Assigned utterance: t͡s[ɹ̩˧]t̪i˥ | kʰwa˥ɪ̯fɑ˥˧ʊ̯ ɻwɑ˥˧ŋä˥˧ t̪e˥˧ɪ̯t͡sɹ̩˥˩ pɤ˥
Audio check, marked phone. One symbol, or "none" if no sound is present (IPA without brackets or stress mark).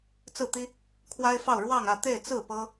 ɹ̩˥˩